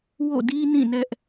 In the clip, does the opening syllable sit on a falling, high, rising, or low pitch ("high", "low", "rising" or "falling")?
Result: falling